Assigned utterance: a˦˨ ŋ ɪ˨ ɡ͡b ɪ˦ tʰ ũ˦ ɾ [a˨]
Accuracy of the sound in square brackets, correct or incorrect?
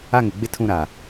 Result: correct